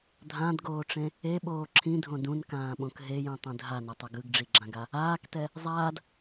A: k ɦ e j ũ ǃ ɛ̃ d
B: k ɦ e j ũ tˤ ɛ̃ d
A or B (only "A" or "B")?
B